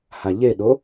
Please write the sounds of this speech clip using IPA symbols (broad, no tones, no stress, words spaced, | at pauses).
haʎeɗo